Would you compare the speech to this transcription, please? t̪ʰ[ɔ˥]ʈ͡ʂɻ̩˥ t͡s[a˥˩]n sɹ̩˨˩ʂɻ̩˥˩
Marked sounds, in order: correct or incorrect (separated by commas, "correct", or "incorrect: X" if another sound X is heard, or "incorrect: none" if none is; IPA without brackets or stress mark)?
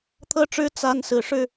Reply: incorrect: ɤ˥, incorrect: a˥